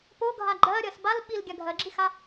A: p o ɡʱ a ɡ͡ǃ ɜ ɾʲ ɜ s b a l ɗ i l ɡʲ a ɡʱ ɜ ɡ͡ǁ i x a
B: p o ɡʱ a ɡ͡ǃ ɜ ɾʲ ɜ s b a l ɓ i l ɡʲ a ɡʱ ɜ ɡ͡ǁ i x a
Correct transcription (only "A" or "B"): B